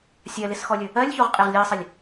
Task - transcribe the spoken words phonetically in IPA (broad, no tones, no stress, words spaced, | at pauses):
sʲɜlɪsxɔlʲɵ | ɜlʲçoʁqʼɪʁ lʲɜsˤɪlʲ